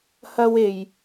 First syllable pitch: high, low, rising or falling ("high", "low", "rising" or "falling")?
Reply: high